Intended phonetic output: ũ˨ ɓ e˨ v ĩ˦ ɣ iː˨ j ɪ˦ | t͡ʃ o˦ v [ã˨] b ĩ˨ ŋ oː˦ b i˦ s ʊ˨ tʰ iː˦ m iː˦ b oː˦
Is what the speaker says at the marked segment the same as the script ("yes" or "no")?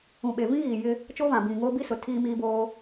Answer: yes